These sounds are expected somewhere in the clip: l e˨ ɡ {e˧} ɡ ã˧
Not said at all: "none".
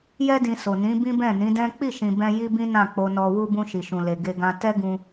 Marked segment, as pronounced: e˧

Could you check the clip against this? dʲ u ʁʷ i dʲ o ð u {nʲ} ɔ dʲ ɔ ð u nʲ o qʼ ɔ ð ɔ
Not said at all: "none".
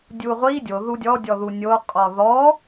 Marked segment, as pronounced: dʲ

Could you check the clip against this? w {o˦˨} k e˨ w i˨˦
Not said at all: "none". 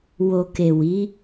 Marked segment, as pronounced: o˨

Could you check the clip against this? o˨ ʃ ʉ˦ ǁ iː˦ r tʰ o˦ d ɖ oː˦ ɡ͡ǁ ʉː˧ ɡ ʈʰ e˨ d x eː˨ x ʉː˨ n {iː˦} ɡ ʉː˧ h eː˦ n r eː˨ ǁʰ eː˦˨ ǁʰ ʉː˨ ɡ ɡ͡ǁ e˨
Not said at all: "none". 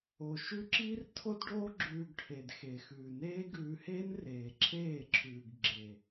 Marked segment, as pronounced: eː˦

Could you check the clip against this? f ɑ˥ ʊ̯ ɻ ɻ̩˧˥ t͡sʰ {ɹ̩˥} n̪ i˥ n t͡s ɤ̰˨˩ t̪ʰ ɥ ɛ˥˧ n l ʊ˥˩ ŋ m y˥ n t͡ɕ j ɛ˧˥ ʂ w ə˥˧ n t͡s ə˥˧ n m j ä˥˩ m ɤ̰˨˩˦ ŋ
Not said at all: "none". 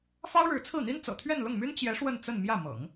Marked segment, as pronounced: ɹ̩˥˩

